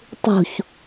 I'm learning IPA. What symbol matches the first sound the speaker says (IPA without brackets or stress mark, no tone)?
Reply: tˤ